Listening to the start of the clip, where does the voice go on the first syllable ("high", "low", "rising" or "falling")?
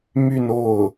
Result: falling